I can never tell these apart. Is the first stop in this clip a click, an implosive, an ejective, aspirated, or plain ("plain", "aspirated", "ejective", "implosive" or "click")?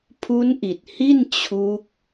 aspirated